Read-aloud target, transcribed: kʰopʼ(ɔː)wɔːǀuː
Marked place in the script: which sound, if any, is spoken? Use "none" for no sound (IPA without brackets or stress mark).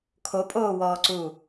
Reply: oː